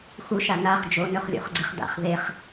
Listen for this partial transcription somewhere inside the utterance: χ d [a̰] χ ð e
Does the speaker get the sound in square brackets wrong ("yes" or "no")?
no